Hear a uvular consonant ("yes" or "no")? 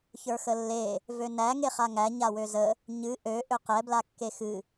yes